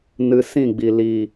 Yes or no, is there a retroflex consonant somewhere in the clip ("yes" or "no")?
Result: no